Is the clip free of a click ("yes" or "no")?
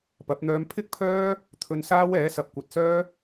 yes